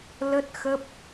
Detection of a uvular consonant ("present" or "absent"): absent